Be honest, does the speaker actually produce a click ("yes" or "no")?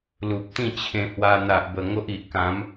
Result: no